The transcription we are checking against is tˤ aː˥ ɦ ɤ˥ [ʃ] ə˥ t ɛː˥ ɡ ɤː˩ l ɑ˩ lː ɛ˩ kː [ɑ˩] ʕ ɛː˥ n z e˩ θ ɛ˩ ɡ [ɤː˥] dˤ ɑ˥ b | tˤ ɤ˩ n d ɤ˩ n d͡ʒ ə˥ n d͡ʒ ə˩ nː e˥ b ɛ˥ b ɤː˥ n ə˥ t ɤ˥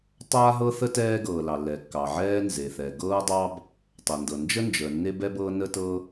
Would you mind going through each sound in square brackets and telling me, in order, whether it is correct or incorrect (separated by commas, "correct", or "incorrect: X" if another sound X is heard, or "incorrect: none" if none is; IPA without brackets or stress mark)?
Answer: incorrect: θ, correct, correct